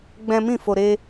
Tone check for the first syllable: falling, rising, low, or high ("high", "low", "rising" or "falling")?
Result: high